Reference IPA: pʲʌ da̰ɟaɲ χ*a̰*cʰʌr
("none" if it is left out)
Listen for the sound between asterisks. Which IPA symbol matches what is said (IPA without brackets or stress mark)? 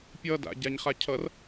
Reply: a